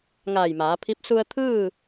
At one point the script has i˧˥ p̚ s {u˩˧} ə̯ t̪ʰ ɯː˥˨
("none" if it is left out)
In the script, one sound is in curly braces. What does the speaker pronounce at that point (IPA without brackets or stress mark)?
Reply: u˧